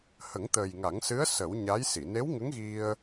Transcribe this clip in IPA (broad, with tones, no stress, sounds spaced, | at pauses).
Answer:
h ə˨˩˦ ŋ t̪ əː˨˩ j ŋ a˨˩˦ ŋ s ɨ˧˥ ə̯ s ə˨˩˦ w ɲ a˧˥ j s i˨˩˨ n e˧˥ w ŋ ə˧˥ ŋ ɣ i˧ ə̯